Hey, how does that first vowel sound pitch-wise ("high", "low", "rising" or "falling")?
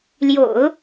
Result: low